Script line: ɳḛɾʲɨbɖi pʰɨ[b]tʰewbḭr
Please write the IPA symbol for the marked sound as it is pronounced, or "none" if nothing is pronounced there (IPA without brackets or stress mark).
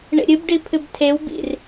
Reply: b